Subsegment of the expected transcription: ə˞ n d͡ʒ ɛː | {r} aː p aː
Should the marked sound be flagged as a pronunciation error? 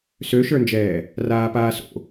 no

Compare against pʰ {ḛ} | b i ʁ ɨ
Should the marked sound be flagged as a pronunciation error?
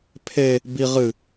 yes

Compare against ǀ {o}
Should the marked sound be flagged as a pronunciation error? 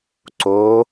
no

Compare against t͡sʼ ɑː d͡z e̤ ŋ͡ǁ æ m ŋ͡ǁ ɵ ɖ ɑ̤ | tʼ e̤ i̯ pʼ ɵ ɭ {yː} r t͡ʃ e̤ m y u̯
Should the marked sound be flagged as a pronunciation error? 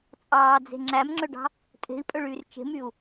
no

